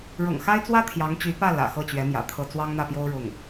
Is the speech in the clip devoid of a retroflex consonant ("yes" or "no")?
no